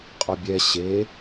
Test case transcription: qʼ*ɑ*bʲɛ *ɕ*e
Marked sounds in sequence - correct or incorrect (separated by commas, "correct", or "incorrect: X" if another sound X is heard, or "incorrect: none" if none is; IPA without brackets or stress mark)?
incorrect: ɔ, correct